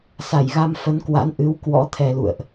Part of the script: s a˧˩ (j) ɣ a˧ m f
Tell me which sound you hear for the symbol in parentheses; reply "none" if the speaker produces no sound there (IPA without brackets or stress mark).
j